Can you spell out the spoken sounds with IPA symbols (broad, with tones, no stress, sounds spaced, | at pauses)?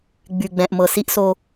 ɡ͡b y˨ ɡ͡b ɛ̃˨ ʔ m ɤ˨ s i˦ ʔ s o˦